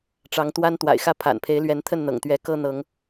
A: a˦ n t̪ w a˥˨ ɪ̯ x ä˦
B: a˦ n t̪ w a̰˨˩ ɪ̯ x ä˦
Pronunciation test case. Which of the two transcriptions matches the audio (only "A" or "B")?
B